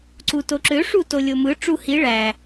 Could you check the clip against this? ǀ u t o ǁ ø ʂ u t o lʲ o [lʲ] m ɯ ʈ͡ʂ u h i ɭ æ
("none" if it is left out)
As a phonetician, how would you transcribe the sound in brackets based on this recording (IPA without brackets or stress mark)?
none